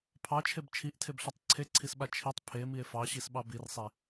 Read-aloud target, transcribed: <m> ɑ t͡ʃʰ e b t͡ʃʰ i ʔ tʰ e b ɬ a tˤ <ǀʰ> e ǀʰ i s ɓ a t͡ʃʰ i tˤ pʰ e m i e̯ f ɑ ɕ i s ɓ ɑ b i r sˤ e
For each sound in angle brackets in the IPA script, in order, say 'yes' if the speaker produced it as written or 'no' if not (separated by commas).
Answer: no, yes